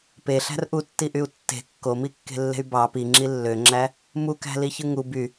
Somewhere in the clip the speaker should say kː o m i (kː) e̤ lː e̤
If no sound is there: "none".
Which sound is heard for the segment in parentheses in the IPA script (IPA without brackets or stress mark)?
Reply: kː